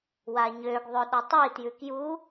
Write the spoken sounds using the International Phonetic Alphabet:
w a ɲ ø ɡ ðˤ ø ɗ ɔ tˤ i t j ʉ k j u

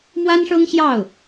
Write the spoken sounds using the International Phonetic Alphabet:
m w a˥ n ʂ ɤ˥ ŋ ɕ j ɑ˥˩ ʊ̯

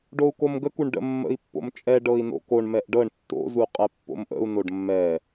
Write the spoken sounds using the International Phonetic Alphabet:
ɖ o u̯ k o m ɡ ə k u ɳ ɖ ə̰ mː ə̰ i̯ pː o̰ m t͡ʃʼ ɛ ɖ ɤ i̯ n o̰ k o ɳ m ɛ ʔ ɖ ɤ ɳ tː o̰ z u qʼ ɛ pː o̰ m ʔ ə̰ u̯ n o ɖ mː ɛ

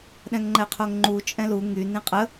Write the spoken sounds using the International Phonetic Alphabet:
ɗ ɛ̃ ŋ ŋ͡ǃ ɛ qʰ o ŋ ŋ͡ǃ u t͡ʃʼ ɛ̃ l u ŋ y n ĩ qʼ ə

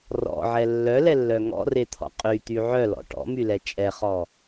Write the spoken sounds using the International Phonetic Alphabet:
r ɔ̰ ʕ ɛ lː œ l ɛ lː œ ŋ ɔ̰ r e t̪ʰ ɔ̰ qʼ y t̪ y ʕ œ l ɔ̰ ʈ ɔ̰ m y l ɛ t͡ʃʼ ɛ χ ɔ

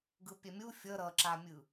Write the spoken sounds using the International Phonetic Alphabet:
ɡ ɯ pʲ ɛ mʲ u fʲ ʌ ɾ ʌ ǁ a mʲ ɯ

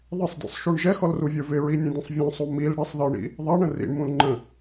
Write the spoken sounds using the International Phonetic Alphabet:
ðˤ ɪ sˤ dʲ ɔ̰ sˤ ʃ u ɳ ʒ ɛ x ɔ l r u vʲ ə˞ v ɪ ɹ i nʲ ə̃ dʲ ə̃ sˤ vʲ ɔ̃ sˤ u m i l ɽ ɪ sˤ ð ə˞ ɳ ḭ | ðˤ ɑ ɳ ə̃ r ḭ ɳ m ũ l ŋ͡ǃ ə̃

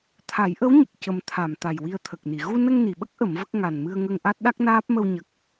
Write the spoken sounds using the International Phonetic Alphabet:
t̪ʰ a˨˩˦ j ʔ ə˧˥ w ɲ ə˨˩ k̚ c ə˨˩ m t̪ʰ a˨˩˨ m t̪ a˨˩ j w i˧ ə̯ t̪ʰ ə˨˩ k̚ n i˨˩˨ ɣ u˧ n ə˧ ŋ n i˨˩˨ ɓ ə˦˥ k̚ ʔ ə˨˩˦ m v ə˦˥ k̚ ŋ a˨˩ n m ɨ˧ ə̯ ŋ ə˧ ŋ ʔ a˦˥ t̚ ɗ a˦˥ k̚ n aː˦˥ p̚ m ə˧ w ɲ ə˨˩ k̚

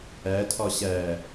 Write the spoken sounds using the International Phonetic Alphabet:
æ tʰ ɒ ɕ æ

